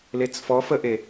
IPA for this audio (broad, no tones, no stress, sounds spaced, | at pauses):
l e t͡s f ɔ f ə ʔ e